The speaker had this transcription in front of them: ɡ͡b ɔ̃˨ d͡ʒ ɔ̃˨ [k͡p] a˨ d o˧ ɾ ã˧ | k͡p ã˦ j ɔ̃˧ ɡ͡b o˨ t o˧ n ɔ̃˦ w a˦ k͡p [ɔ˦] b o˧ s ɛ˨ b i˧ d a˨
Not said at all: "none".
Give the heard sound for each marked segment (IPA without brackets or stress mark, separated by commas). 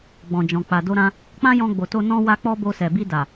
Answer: k͡p, ɔ˦